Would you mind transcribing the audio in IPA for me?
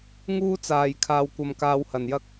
ŋ uː˥ t͡s aː˨ j kʰ aː˧ w kʷ ɐ˧ m k aː˧ w h ɐ˨ n j ɐ˥ k̚

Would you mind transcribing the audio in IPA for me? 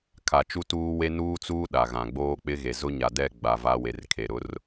kʰ a˨ t͡ʃ u˦ t uː˦ w e˦ n uː˦ t͡s uː˦ ɗ a˨ ɣ ã˨ ɡ͡b oː˦ k͡p ɪ˦ ɣ e˨ z ʊ˦ ɲ a˨ d ɛ˦˨ ɡ͡b a˨ v a˦ w e˨˦ r kʰ e˨ ɾ ʊ˦ r

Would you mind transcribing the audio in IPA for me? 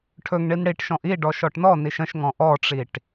ʈʰ ɵ ŋ ɳ i n ɽ i ʈ ʃ ɔ̃ ʔ i ɖ ɔ ʃ ɔ ʈ n ɔ n i ʃ ə̃ ʃ ŋ ɔ̃ ʔ ɔ ʈ͡ʂ i ʈ

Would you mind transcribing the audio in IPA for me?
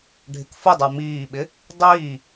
ɖʱ ɪ k f ʊ dˤ ə˞ m iː ɓ ɪ | dˤ iː

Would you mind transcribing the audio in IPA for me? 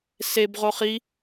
s e b ʁ o χ i

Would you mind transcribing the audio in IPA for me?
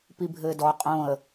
p i bʱ ɘː d ɔ qʼ õ ə̯

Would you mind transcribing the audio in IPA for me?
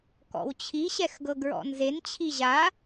k ɔ̰ w t͡ɕʰ i ɕ ɛ x ɡ ɤ ɡ ɹ ɔ̰ n z e n t͡ɕʰ i ʑ a

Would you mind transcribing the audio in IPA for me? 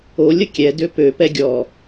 o lʲ ə kʲ ɛ d ø p ø p ɛ ɡʲ ɔ

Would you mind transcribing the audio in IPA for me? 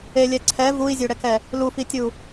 e lʲ ɛ ǀʰ ɛ v u i̯ zʲ ø ɽ ɛ k ɛ | l u f i tʲ u

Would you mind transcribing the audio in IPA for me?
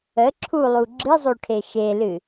ə ǁʰ u lˠ u ɡ͡ǁ ɨ zˤ o ʈʰ e ʃ e l ɨ

